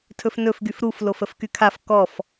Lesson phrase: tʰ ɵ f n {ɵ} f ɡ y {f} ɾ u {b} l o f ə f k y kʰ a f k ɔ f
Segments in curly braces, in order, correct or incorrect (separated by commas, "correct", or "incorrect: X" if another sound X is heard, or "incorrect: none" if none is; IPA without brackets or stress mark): correct, correct, incorrect: f